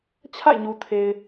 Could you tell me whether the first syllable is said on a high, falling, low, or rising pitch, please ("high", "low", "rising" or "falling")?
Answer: falling